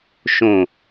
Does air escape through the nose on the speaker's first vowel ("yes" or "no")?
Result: yes